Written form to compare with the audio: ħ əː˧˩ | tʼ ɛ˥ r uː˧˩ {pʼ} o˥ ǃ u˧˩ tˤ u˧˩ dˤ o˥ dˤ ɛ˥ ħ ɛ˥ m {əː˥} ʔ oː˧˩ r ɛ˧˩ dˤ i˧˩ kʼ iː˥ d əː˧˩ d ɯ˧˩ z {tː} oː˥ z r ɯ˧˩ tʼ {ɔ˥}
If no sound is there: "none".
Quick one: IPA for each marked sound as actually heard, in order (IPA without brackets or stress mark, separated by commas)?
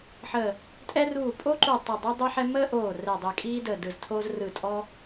pʼ, əː˥, tʰ, ɔ˥